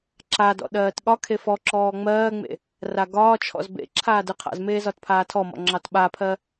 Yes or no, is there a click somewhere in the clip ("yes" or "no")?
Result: yes